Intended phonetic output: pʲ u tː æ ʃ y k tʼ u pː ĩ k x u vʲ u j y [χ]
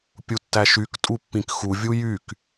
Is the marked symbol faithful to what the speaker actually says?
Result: no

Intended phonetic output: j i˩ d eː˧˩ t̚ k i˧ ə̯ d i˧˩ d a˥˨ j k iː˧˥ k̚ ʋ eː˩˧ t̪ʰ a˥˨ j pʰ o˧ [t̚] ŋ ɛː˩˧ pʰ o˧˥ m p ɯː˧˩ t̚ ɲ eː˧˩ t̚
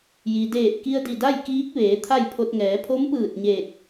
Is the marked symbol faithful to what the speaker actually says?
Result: yes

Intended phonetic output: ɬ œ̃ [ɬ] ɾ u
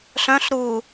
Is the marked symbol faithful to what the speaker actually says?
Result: yes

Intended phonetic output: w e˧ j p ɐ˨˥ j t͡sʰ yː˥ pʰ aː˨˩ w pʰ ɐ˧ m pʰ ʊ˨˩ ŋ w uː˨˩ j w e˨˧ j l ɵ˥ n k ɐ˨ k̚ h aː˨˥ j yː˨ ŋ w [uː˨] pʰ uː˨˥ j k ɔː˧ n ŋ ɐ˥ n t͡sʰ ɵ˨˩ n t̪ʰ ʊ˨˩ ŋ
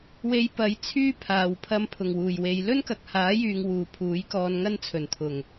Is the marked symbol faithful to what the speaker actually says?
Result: yes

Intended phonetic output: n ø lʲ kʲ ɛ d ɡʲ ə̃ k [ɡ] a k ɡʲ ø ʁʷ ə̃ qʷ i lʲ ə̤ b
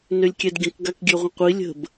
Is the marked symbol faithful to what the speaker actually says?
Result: yes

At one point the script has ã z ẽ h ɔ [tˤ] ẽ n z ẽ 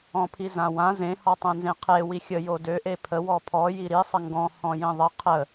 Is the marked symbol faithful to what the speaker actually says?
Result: yes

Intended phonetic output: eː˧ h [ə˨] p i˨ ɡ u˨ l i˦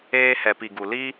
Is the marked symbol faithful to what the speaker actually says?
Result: no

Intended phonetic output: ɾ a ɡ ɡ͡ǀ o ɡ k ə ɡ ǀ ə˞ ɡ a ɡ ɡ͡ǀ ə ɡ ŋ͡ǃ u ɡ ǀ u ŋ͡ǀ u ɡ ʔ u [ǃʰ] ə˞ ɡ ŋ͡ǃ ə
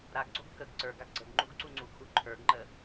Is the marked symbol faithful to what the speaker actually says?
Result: yes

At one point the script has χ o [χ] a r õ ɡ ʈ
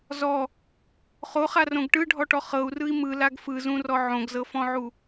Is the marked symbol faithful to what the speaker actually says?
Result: yes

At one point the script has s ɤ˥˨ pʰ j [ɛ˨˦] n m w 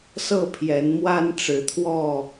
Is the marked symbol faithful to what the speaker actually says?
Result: yes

